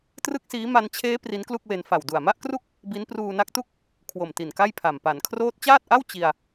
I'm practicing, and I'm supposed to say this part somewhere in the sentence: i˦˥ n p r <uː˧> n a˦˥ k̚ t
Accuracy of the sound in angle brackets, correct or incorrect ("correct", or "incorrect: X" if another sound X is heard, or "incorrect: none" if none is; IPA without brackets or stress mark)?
correct